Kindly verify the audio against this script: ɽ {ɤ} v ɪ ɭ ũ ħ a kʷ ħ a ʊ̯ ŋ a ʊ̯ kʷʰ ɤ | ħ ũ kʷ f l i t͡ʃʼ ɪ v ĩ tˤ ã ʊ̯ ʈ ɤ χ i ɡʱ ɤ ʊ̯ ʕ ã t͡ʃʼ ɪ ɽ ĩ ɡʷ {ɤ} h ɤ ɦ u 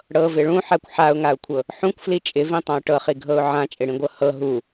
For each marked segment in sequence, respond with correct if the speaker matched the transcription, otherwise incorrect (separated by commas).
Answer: correct, correct